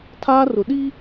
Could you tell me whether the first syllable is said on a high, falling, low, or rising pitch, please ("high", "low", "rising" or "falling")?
high